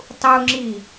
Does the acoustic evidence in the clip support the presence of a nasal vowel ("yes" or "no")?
no